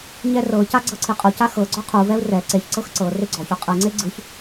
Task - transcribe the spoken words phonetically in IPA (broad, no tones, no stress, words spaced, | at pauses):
ɲɛrɤca ɡ͡ǀɤǀʰiqʼoca xɤ ɡ͡ǀɔqʰuvɛu̯ rɛ ǀeçǀɤx ǀɤ reɡ͡ǀɔço qʼɯŋ͡ǀe ɡ͡ǀɯç